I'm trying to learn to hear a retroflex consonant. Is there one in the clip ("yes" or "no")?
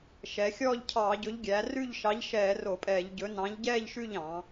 no